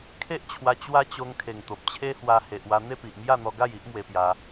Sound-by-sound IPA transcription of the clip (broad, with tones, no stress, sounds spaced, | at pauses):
kʰ e˦ ʔ t͡ɕʰ w a˧ t͡ɕ w a˦ t͡ɕ o˧ ŋ kʰ e˨˩ ŋ t̪ o˨ p̚ t͡ɕʰ e˦ h w a˧ h e˨ ʔ w a˧ n̪ e˥˧ p i˨ ʔ m j a˥˧ n̪ ɔ˧ ɡ a˥˧ j i˦ ʔ m w e˧ p j a˧